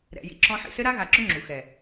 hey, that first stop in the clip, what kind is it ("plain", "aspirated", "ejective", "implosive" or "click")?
click